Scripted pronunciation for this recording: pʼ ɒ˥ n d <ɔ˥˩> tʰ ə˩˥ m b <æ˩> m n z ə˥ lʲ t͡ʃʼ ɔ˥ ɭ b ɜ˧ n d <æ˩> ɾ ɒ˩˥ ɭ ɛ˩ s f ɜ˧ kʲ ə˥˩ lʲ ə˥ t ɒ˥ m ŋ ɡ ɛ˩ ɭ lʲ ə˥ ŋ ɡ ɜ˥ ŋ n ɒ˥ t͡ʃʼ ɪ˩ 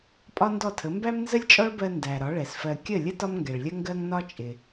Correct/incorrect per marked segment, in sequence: correct, incorrect, correct

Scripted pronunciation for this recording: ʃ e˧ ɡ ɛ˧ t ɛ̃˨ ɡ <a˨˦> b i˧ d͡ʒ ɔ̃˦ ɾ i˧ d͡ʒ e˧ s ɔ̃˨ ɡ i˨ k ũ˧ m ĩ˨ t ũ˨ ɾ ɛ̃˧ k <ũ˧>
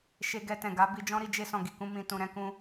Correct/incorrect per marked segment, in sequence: correct, correct

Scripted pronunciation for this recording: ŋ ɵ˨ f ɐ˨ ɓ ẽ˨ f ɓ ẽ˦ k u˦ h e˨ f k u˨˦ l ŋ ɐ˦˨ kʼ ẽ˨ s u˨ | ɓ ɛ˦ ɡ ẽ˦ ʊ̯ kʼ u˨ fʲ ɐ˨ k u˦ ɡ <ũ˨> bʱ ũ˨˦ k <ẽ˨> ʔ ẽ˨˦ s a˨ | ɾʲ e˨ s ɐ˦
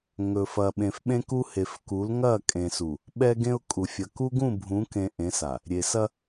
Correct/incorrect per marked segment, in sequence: incorrect, correct

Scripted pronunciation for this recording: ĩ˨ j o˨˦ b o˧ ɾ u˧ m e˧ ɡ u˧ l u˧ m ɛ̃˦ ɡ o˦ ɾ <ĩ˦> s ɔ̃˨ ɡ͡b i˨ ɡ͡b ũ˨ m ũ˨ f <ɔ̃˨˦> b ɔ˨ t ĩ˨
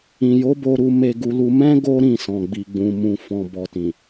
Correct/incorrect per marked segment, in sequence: incorrect, incorrect

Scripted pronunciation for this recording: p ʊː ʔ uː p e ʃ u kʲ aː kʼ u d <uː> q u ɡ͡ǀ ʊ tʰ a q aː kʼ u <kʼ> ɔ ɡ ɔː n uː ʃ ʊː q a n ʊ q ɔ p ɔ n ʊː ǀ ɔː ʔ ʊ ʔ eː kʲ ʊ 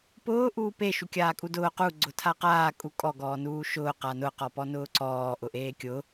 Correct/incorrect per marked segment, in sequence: incorrect, correct

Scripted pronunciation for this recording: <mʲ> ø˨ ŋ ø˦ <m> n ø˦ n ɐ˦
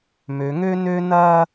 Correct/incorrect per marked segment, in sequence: incorrect, incorrect

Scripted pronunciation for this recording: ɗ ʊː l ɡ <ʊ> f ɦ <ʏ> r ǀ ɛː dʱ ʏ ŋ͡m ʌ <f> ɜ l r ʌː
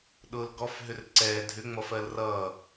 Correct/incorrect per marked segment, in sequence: incorrect, correct, correct

